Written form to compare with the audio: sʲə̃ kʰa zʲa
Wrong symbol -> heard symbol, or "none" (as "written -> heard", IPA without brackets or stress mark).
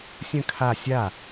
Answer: zʲ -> sʲ